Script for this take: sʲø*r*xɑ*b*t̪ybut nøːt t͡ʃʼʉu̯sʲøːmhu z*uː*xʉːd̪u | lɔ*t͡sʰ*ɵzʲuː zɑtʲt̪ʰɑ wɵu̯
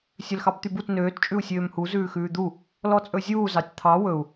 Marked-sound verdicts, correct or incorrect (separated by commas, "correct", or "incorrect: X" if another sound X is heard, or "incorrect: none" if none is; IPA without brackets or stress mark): incorrect: l, correct, incorrect: ʉː, incorrect: t͡sʼ